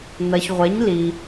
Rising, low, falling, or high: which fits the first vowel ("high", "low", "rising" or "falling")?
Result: low